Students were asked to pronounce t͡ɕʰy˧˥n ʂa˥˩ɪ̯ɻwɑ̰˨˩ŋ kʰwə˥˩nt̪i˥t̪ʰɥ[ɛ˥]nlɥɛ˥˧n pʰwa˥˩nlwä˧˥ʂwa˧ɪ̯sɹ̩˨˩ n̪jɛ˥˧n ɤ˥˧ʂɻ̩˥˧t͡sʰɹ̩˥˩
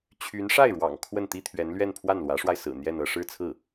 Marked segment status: incorrect: ɛ˧˥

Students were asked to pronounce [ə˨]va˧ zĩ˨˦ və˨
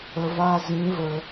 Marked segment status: correct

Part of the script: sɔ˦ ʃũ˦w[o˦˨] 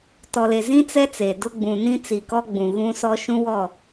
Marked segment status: incorrect: ɔ˦˨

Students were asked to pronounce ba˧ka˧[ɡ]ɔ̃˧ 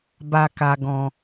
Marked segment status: correct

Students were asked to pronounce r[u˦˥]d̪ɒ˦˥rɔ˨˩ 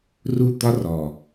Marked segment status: correct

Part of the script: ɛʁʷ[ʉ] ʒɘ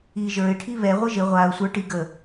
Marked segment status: incorrect: ɘ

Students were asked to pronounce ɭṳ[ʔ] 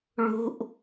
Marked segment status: correct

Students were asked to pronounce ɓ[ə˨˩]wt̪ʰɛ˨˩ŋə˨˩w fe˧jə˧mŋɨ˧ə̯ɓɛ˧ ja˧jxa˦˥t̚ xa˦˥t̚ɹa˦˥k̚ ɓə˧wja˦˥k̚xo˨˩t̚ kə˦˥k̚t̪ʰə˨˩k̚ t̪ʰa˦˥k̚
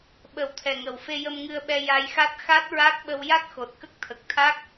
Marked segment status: correct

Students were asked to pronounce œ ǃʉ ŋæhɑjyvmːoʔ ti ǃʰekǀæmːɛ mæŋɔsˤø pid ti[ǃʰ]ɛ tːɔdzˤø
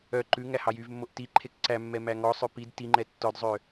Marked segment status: incorrect: ŋ͡ǃ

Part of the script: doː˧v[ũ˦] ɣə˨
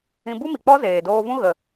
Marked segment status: correct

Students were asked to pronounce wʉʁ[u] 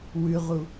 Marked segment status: correct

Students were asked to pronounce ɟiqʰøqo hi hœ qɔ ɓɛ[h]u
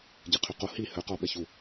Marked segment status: incorrect: ç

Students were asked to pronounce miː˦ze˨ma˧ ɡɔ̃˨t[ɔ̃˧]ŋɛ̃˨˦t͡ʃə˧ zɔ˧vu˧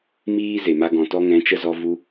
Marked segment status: incorrect: ɔ˧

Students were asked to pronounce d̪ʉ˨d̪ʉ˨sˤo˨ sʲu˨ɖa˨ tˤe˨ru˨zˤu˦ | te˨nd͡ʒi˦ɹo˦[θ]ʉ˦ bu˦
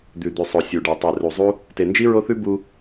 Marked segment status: correct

